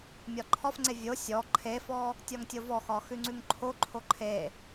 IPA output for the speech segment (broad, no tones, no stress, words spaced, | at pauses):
mʲɒǃʰɒfŋ͡ǀe vʲo sʲɔ ǃʰefɔ | tʲɒŋtʲovɔxɒ xʉŋ͡ǀʉŋǃʰoǃʰo ǃʰe